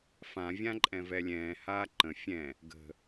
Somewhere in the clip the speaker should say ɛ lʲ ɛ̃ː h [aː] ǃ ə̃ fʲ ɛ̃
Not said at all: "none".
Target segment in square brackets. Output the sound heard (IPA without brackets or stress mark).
aː